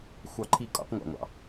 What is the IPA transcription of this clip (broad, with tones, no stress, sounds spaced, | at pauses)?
xʷ ɑ˧˩˧ ǃʰ i˧˩˧ kʼ ɔ̰˧˩˧ q ŋʷ ɑ̰˩ ŋʷ ɑ̰˩